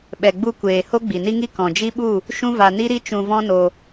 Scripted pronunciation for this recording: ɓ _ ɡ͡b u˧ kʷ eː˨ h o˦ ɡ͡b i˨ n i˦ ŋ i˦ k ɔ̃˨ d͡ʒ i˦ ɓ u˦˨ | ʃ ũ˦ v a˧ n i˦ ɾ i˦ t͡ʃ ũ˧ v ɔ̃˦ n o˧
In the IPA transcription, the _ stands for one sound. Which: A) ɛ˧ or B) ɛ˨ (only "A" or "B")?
B